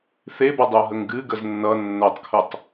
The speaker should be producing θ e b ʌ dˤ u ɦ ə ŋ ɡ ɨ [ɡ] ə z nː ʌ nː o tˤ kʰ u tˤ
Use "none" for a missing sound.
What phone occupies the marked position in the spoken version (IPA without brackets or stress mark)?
ɡ